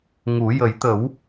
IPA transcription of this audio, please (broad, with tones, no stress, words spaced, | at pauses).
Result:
ŋu˨˩˦ jə˨˩˦j t̪ə˨˩˦w